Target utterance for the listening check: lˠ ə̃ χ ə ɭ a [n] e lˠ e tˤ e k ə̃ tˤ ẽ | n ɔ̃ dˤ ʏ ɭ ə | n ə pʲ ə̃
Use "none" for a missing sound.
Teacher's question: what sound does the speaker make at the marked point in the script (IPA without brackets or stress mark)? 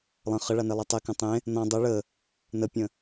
n